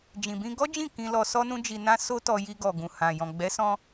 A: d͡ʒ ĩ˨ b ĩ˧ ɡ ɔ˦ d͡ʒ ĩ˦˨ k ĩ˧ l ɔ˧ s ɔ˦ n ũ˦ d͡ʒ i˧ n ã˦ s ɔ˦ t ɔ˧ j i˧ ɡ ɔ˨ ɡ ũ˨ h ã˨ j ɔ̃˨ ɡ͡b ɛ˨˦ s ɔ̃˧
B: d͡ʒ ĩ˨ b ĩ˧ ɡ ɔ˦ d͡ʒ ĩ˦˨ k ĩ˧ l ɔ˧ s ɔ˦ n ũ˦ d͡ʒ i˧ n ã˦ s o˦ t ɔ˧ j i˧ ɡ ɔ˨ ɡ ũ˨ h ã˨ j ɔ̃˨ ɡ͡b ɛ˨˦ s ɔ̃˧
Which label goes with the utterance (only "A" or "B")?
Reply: B